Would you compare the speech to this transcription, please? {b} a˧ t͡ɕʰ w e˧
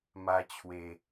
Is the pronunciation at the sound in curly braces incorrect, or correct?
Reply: incorrect: m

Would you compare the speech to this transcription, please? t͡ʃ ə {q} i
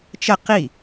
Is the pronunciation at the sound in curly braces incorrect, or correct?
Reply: correct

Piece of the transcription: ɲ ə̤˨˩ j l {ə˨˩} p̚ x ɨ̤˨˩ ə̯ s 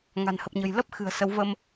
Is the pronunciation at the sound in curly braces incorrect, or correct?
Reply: incorrect: ə˦˥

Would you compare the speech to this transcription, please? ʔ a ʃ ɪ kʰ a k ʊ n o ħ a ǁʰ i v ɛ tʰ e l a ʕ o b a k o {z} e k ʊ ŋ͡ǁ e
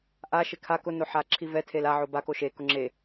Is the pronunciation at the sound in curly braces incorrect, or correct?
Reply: incorrect: ʃ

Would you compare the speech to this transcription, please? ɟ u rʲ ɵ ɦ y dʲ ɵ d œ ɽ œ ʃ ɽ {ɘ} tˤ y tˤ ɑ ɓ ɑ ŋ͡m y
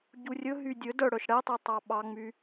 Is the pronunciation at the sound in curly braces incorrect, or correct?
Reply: incorrect: ɛ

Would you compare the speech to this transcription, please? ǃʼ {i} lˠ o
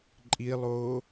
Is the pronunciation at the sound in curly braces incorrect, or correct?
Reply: correct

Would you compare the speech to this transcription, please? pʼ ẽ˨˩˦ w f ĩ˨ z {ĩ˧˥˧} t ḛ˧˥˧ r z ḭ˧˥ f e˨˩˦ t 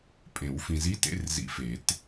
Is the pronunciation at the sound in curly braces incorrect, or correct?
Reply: incorrect: i˧˥˧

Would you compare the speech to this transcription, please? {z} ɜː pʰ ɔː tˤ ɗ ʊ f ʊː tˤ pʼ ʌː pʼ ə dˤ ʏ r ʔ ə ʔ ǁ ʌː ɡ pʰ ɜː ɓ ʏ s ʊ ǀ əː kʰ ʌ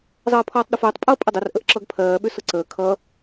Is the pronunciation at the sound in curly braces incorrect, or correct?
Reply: incorrect: zˤ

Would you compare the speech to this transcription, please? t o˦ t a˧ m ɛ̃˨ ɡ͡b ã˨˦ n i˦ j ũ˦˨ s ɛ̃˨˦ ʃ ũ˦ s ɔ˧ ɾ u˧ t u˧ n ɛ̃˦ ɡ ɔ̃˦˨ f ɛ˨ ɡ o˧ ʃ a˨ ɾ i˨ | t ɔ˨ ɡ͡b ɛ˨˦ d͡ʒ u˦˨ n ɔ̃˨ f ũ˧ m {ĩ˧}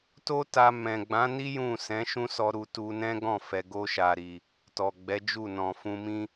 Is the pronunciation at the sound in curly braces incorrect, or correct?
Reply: incorrect: ĩ˦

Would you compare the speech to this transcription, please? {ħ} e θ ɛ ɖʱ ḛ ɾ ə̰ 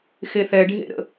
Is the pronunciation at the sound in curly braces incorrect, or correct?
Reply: incorrect: x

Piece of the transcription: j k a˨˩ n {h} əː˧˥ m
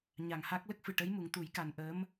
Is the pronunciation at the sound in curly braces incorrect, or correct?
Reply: incorrect: ʔ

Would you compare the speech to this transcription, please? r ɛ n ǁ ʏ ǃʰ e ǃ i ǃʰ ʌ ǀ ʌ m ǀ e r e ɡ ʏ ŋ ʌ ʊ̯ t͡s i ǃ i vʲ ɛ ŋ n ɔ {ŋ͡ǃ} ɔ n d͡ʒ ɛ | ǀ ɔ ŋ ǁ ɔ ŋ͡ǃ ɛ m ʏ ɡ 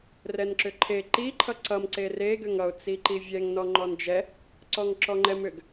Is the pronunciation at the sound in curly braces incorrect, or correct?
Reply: correct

